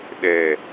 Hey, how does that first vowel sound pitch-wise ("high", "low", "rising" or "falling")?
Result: low